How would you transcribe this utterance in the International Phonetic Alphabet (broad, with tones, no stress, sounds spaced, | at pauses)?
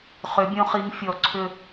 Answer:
χ ʏ˧˥ bʲ õ˥ χ i˧˥ ŋ fʲ ɔ˧˩ ǀʰ ʏ˥˧